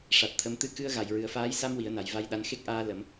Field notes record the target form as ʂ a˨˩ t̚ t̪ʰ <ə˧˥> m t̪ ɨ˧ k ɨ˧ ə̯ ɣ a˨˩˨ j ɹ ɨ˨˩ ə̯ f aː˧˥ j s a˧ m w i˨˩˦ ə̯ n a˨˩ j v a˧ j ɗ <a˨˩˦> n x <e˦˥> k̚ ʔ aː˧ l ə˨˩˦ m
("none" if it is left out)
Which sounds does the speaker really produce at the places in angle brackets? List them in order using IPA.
ə˧˥, a˧˥, e˦˥

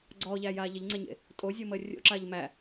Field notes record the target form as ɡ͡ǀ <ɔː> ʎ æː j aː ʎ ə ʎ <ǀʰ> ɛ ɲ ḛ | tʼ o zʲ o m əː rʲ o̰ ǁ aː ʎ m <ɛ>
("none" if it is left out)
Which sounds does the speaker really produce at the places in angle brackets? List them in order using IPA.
ɔː, ŋ͡ǀ, æ

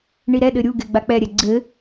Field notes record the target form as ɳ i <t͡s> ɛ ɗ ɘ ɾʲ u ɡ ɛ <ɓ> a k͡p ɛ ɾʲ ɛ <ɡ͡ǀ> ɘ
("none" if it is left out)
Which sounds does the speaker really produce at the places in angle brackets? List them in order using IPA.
ɾ, ɡ͡b, ɡ͡ǀ

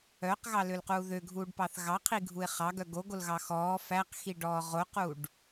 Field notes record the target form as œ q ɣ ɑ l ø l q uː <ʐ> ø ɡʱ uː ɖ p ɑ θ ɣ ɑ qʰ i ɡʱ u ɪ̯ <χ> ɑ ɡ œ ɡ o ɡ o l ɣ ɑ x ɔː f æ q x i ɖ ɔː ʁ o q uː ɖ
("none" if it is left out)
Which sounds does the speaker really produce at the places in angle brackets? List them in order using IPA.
ð, χ

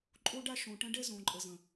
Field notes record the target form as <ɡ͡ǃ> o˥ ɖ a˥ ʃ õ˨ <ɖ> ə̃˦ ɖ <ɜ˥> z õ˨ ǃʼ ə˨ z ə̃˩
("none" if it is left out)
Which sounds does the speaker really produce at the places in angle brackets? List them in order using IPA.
ǃʼ, ʈ, ɛ˥

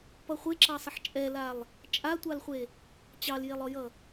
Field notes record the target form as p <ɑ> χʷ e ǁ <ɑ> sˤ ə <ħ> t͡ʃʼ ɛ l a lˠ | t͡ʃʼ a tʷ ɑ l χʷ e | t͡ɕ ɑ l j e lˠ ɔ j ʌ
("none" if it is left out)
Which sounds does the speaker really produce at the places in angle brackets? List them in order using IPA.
ʌ, ɑ, ħ

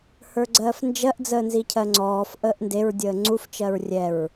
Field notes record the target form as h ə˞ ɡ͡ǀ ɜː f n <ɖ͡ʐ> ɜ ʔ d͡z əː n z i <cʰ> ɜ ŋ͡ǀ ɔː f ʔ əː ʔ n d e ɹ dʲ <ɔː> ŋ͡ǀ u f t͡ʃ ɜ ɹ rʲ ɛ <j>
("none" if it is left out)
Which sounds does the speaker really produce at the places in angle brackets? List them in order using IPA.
d͡ʒ, cʰ, əː, ɹ

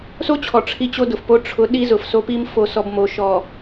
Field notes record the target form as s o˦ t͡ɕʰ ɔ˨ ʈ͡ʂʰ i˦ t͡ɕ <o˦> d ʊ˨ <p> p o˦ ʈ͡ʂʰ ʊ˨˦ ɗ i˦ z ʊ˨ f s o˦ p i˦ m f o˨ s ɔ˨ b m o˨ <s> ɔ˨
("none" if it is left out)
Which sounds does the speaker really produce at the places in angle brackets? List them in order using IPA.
o˦, f, ʃ

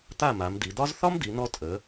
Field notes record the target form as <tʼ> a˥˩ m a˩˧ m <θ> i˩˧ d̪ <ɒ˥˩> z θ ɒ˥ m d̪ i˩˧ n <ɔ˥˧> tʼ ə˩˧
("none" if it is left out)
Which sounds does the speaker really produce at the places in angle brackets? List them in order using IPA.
t̪, d̪, ɒ˥, ɔ˧

